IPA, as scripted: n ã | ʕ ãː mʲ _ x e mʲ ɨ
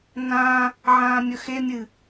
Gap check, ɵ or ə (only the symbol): ɵ